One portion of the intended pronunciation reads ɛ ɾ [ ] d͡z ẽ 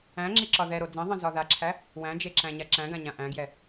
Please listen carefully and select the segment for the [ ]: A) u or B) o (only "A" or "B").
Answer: B